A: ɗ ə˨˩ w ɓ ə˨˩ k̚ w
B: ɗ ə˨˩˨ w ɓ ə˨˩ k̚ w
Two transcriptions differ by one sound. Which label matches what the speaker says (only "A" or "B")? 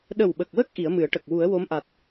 A